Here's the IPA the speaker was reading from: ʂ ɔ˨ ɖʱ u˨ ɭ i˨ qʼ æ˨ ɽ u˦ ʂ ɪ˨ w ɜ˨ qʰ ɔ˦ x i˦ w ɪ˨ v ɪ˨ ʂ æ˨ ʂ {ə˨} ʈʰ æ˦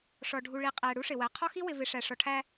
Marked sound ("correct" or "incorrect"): incorrect